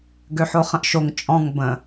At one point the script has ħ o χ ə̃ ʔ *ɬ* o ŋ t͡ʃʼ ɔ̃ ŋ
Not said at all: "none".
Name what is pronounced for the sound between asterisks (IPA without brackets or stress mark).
ʃ